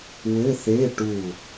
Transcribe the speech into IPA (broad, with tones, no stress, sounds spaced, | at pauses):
w ɘ˧˥˧ θ e˧˥˧ ʈ u˧˩